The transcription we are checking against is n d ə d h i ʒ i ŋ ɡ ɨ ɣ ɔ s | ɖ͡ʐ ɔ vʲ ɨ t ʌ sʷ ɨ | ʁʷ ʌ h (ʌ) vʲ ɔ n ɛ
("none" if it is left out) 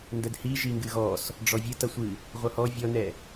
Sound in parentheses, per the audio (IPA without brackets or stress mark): ɔ